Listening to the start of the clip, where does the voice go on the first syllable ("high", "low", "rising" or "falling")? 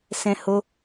high